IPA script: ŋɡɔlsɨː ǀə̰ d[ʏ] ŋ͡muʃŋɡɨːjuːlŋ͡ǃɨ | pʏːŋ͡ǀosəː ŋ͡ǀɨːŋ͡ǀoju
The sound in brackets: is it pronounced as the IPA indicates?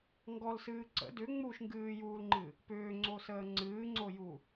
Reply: yes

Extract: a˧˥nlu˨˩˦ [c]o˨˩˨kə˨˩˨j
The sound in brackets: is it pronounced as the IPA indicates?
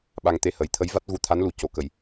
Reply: yes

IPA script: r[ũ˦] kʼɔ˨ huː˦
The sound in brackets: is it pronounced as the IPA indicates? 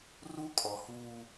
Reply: no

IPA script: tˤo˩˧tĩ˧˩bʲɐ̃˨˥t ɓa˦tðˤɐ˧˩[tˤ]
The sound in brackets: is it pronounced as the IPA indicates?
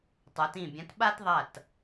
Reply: no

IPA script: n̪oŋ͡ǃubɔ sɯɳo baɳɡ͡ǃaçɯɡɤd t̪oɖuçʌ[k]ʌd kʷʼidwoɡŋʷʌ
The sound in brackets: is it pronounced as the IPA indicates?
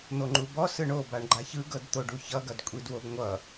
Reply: no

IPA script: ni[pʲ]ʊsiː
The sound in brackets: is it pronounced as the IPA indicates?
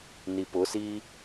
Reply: no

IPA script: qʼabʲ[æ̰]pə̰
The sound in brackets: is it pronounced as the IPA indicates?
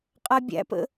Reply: yes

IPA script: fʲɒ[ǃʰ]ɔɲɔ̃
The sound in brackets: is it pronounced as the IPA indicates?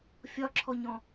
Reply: no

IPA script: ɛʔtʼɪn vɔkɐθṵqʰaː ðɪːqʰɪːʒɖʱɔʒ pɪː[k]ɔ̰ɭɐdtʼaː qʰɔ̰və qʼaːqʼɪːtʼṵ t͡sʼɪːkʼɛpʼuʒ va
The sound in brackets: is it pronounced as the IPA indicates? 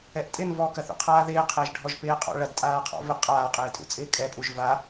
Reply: no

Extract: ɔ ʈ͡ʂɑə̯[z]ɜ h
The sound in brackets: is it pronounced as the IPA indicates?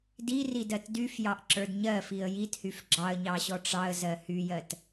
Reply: yes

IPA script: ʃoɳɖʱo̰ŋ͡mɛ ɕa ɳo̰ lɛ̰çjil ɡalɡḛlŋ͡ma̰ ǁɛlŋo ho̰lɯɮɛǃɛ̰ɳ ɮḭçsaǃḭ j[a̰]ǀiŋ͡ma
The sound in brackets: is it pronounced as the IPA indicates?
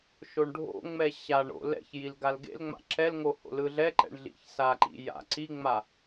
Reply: yes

